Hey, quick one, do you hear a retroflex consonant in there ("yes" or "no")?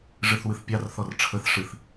yes